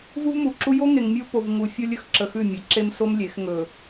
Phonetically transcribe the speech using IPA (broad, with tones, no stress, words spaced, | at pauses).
vu˦vmu˨ǁu˦ jo˦ŋe˨ŋ mʲo˦po˨vŋu˨ fʲo˦lʲɵ˦xǁə˨ xʉ˦˨mʲe˨ǁe˦mso˦m lʲe˨˦x ŋɵ˨